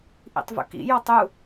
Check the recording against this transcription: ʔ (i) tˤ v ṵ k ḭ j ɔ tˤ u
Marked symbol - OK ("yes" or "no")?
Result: no